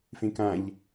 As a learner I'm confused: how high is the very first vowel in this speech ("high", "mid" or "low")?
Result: mid